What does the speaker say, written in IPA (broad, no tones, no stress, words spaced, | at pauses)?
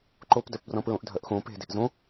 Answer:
ǃopdœpbrɔ̃ pɹõʔdʱœʔxõ pe̤de̤ʔ zõ